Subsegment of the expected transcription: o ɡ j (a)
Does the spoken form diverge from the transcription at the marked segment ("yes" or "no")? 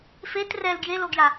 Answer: no